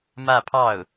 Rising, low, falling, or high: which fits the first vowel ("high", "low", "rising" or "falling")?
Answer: falling